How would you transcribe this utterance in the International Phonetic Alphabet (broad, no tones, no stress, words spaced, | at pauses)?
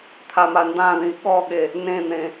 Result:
t̪ʰamandãðĩ ɠɔɠe | nẽn̪ẽ